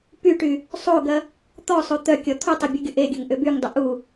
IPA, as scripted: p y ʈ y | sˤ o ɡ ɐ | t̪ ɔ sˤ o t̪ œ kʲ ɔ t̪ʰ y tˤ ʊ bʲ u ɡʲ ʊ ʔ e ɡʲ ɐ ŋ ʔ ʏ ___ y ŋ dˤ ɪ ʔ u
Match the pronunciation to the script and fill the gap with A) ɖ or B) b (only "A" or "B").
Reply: B